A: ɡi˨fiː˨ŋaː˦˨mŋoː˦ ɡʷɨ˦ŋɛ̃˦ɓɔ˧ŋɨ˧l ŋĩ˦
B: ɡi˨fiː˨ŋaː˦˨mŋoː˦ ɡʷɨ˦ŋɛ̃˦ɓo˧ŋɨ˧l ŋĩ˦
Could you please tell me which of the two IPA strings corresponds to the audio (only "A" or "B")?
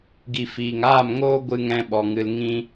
A